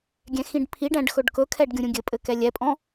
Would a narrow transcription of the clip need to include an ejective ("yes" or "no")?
yes